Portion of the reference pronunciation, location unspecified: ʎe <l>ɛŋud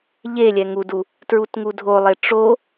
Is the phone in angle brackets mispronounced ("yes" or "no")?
yes